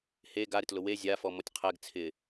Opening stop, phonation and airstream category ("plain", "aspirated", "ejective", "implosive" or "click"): plain